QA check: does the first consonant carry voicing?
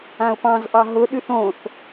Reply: no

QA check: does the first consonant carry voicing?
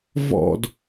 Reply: yes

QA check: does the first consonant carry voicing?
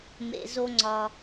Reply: yes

